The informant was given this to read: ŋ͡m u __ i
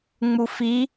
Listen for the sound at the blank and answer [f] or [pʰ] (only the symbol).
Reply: f